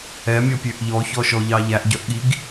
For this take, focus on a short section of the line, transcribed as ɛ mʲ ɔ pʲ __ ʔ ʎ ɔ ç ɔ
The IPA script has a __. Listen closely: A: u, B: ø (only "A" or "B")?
B